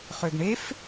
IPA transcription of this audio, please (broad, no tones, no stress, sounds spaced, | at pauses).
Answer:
χ ø ɡ ɳ e f